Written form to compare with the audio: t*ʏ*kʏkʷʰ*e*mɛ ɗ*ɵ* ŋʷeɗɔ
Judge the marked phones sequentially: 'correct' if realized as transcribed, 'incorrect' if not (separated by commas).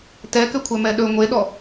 incorrect, incorrect, correct